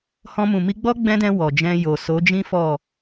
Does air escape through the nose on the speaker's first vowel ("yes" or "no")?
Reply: yes